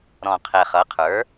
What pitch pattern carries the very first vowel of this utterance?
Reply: low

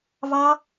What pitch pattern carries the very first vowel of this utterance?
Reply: high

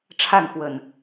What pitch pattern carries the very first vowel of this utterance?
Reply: falling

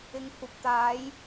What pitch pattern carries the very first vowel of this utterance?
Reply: low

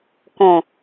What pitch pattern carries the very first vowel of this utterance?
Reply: low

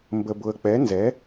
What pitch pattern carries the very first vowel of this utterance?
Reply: low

